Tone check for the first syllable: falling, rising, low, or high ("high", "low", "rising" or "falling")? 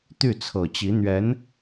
falling